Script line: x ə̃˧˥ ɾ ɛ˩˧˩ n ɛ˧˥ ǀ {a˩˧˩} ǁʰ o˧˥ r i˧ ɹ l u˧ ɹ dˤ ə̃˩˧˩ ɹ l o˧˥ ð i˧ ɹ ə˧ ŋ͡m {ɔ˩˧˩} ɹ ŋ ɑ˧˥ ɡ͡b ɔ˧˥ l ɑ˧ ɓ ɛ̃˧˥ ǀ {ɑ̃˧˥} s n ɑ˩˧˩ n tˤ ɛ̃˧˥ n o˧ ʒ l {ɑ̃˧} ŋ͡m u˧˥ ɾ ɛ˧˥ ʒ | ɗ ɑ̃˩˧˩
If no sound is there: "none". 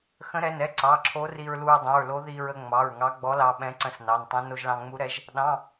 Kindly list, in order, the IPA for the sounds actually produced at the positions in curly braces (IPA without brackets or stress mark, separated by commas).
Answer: ɑ˩˧˩, ɑ˩˧˩, ə̃˧˥, ɑ̃˧